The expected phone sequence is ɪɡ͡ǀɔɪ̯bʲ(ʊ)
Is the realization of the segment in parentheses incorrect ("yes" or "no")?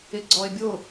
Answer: no